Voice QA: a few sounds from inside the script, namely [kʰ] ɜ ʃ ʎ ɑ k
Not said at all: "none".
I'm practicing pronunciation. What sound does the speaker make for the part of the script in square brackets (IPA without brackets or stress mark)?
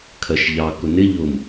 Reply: kʰ